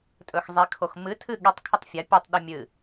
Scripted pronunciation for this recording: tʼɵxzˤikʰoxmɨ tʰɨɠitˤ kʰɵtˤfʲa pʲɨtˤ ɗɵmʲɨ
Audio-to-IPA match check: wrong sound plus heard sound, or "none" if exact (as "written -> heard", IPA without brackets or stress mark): none